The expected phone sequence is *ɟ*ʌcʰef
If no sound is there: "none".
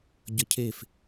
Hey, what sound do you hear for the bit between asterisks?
ɟ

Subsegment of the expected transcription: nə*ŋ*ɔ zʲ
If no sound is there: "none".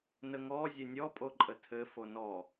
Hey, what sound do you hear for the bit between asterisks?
ŋ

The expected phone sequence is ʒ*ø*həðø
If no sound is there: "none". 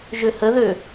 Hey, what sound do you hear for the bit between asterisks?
ø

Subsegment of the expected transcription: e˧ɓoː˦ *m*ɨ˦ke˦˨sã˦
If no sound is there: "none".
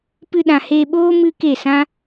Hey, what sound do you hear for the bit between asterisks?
m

